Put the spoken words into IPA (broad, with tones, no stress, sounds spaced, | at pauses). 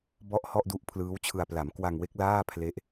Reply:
b ɔ˦˥ ʔ h ɔ˥˩ ʔ d u˦˥ ʔ pʰ l ɯː˦˥ w t͡ɕʰ ɯ˧ a̯ p l a˩˦ m k w a˧ ŋ w e˦˥ k̚ l aː˥˩ pʰ l e˦˥ ʔ